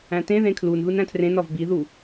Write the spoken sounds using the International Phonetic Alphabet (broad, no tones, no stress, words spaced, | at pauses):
æ̃tẽðẽ kʰlunðun æ̃tʰrẽnɒv biðu